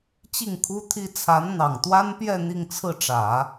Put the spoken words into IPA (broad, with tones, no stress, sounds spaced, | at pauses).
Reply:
t͡ɕ i˥˩ ŋ kʰ u˥ t̪ʰ i˥ t͡sʰ a˧˥ n n̪ ɑ˨˩ ŋ t̪ w a˥ n p j ɛ˥˧ n̪ i˥˧ ŋ t͡sʰ ɹ̩˥˩ ʈ͡ʂ ä˨˩˦